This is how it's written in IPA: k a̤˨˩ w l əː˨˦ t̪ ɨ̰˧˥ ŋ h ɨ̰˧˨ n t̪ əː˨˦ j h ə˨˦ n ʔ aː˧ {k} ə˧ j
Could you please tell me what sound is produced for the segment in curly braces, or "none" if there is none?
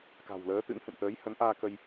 k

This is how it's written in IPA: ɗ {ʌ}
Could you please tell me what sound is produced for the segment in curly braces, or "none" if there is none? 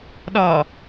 ɒ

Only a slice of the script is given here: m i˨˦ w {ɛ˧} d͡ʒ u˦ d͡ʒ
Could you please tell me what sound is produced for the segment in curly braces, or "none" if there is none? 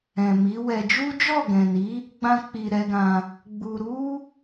ɛ˧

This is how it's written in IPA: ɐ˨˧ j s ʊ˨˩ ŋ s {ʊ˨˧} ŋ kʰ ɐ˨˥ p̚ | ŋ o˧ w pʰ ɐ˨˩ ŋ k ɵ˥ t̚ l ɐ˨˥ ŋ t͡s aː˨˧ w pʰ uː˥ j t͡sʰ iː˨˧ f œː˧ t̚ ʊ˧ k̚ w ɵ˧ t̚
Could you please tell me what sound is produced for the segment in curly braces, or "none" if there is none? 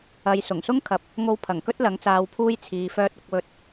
ʊ˥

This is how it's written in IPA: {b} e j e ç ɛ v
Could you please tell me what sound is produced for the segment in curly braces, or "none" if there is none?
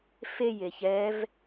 f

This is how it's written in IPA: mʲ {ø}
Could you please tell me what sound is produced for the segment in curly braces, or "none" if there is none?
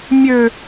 ø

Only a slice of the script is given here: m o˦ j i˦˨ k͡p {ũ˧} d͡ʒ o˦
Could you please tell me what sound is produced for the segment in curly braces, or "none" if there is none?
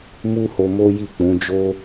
ũ˨˦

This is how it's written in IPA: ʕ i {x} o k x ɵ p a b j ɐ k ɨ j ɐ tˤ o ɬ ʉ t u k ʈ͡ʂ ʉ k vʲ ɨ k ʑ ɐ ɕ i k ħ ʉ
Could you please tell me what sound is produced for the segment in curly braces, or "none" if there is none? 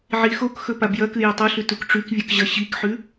x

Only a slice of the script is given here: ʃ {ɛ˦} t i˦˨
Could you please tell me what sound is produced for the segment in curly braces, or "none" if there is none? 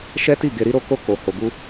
ɛ˦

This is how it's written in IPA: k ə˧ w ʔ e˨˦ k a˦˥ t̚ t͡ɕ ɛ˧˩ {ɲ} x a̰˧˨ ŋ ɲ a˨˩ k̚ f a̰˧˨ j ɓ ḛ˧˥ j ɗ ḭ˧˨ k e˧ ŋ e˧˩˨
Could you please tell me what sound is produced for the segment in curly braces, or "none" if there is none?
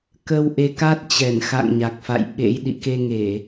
n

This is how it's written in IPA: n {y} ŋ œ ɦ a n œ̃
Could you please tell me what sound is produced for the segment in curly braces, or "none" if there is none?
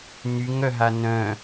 y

